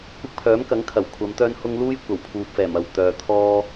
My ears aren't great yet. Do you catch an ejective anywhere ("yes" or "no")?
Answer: no